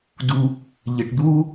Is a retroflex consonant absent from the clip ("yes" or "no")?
no